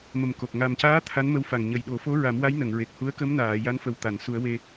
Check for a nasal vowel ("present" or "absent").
absent